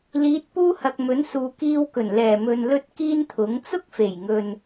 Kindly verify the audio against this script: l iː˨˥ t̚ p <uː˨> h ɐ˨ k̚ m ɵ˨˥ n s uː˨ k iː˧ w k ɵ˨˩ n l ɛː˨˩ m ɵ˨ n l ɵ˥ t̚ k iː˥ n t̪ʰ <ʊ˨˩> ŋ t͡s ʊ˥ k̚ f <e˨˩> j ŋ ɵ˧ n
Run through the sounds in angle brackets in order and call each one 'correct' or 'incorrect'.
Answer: incorrect: uː˥, incorrect: ʊ˨˥, correct

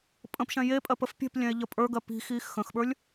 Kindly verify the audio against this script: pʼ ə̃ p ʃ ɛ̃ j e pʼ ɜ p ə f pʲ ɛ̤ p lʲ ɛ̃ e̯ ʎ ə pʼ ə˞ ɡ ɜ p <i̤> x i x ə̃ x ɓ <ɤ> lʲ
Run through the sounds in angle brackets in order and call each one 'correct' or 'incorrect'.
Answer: correct, incorrect: ə˞

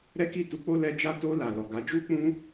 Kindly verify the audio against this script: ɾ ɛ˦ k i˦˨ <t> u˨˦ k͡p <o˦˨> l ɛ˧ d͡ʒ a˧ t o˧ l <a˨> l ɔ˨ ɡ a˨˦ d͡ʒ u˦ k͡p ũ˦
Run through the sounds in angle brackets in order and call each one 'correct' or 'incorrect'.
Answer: correct, incorrect: o˦, correct

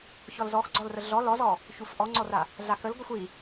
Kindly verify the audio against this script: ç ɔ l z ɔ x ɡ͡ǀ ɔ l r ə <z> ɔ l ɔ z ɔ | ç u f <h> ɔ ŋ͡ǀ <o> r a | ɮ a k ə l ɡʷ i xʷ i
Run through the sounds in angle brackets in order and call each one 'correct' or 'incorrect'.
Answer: incorrect: ɮ, incorrect: ʔ, incorrect: ɔ

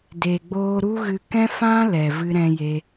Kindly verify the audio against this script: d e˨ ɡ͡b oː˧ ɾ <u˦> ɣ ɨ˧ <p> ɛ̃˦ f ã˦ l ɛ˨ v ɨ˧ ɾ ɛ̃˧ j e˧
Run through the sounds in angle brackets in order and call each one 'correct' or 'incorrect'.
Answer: correct, incorrect: k

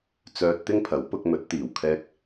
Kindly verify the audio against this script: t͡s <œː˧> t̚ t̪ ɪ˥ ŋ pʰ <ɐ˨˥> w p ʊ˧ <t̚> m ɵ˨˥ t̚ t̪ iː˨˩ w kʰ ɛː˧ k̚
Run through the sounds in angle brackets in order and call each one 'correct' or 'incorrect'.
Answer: correct, correct, incorrect: k̚

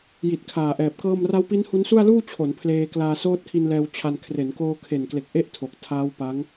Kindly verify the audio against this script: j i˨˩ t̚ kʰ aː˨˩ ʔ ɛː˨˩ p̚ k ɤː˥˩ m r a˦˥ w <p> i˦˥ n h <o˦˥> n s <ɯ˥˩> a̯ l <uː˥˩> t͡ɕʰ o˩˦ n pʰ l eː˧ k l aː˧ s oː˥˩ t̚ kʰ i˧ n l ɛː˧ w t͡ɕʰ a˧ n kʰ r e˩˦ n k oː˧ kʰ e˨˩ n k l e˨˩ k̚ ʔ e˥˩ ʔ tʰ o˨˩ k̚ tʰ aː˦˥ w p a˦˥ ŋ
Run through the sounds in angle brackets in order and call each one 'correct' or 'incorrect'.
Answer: correct, incorrect: u˦˥, incorrect: u˥˩, correct

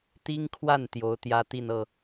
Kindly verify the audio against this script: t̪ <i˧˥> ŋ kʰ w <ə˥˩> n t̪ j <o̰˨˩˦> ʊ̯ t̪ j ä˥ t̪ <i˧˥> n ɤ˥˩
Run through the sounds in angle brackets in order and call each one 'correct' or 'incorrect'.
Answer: incorrect: i˥, incorrect: a˥˩, incorrect: o˧˥, incorrect: i˥˧

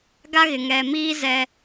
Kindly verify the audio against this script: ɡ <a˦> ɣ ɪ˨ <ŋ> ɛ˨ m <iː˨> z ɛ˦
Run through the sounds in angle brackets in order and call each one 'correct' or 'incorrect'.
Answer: correct, correct, incorrect: iː˦

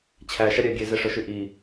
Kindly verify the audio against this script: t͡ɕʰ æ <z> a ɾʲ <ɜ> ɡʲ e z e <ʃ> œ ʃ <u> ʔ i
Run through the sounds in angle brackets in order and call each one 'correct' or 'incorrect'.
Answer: incorrect: ʃ, incorrect: æ, incorrect: ʂ, incorrect: y

